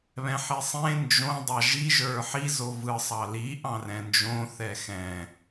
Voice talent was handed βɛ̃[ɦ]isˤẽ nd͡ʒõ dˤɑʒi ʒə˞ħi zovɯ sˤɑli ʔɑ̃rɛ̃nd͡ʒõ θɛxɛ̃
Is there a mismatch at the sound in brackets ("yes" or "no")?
yes